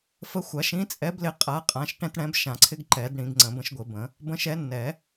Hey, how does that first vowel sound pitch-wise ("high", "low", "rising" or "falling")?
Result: rising